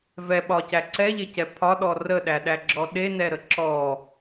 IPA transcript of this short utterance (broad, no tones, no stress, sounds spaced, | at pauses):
v ɛ ɓ ɒ c æ ǀ ɛ ʎ e c ɛ pʰ ɒ ɗ ɔ r ə ɗ æ ɗ æ ɡ͡ǁ ɔ ɗ e n ɛ ɾ ə ǁ ɔ